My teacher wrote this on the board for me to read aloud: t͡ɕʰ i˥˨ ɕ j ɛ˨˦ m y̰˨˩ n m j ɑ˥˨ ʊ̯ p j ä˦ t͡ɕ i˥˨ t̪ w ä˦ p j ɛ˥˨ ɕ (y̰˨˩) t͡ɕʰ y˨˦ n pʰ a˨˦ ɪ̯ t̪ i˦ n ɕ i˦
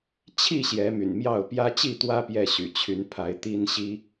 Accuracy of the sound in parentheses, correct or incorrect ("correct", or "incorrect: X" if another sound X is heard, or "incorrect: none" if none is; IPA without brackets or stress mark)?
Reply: correct